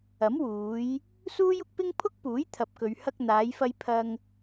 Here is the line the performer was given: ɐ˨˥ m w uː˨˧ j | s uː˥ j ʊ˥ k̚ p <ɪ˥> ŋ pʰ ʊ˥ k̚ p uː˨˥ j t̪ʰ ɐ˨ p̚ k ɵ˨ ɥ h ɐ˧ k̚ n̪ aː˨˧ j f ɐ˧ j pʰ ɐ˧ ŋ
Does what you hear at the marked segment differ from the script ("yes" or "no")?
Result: no